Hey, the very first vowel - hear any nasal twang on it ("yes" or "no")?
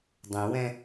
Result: yes